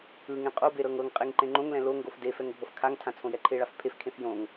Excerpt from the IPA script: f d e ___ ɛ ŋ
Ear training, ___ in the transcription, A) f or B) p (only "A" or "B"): A